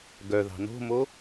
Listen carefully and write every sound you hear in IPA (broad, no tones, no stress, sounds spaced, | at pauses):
ɡ œ ð ɑ̤ n o̤ m o